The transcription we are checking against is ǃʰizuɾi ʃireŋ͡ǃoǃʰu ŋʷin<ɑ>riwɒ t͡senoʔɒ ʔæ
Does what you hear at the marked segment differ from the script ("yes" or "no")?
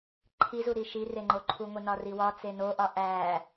yes